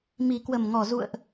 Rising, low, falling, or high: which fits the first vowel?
low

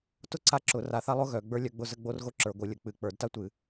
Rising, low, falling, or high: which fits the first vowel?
high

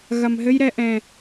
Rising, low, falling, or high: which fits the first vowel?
low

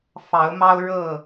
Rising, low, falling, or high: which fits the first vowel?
rising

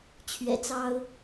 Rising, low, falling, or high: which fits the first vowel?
low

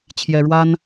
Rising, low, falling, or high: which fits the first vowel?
high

